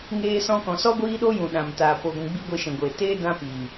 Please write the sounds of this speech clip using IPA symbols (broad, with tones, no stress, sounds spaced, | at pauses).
ŋ eː˧ s ɔ̃˧ k ɔ̃˨ s ɔ˦ ɡʷ iː˦ ɗ o˦ j ũ˨ ɗ ã˨ m t aː˨ p o˨ ɡʷ ũ˨ ɡ͡b i˦ ɡʷ e˧ ʃ ɛ̃˨ ɡʷ eː˨ t eː˦ d ã˦ p iː˨